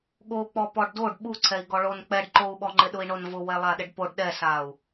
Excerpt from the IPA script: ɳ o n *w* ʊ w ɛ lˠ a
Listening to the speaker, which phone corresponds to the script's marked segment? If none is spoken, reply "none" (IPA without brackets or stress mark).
v